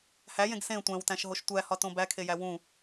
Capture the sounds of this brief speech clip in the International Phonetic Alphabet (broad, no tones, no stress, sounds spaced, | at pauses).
h æ j ẽ ɡ s ẽ tʷ æ̃ w t æ̃ ʃ ɦ o ʃ tʷ æ h ɒ t õ b æ kʰ e j æ w ũ